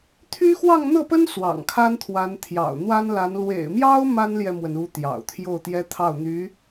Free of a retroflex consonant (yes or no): yes